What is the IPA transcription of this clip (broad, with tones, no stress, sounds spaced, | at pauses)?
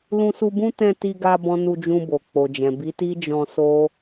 l ũ˧ s u˧ b ũ˦ t ɛ̃˦˨ t i˧ ɡ a˧ b ɔ̃˦ n u˧ d͡ʒ ũ˧ b o˨ k͡p o˨ d͡ʒ ɛ̃˨ b i˨˦ t i˦ d͡ʒ ɔ̃˧ s o˦